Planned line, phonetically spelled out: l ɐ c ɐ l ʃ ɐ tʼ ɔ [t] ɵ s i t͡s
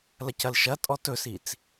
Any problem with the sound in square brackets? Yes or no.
no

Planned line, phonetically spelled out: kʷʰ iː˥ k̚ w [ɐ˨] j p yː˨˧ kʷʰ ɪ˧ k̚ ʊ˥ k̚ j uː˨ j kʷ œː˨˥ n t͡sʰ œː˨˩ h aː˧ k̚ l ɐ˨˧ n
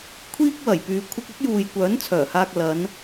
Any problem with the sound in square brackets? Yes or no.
yes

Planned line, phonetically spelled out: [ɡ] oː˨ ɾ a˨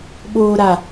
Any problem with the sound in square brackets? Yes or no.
yes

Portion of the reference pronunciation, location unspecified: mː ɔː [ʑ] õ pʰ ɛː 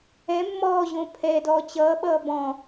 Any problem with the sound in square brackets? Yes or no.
no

